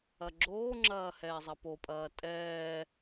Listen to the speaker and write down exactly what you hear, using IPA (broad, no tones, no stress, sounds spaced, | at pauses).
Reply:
ɐ ɡ͡ǁ oː ŋ͡ǁ ɐː h ɛː zˤ ɐ p o pʼ ɐː tʼ ɛː